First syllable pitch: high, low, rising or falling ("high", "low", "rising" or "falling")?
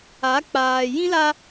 rising